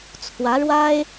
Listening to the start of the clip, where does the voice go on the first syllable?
rising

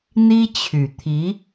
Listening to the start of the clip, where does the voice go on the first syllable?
high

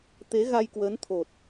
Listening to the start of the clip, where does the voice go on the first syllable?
rising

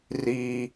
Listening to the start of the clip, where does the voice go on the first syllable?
low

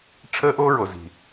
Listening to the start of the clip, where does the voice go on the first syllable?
high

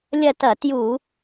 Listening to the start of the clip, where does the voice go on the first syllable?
falling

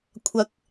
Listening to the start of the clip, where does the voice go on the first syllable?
rising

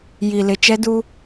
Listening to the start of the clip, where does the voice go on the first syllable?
low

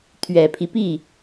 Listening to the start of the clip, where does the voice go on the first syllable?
low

